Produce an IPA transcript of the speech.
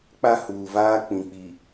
k͡p a˦ h uː˨ v aː˦ k͡p ĩ˨ k͡p i˨

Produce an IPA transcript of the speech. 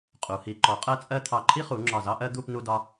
qʼ u˩˧ h i˩˧ ǃ ɔ˩˧ qʼ ɜ˥ t͡sʼ ɜ˥ t̪ʰ ɑ˧˩ ǃʰ i˥ χ u˩˧ ŋ͡ǁ ɒ˧˩ z ɑ˥ ʔ ɜ˥ d̪ u˥˧ p n u˧ d ɒ˧

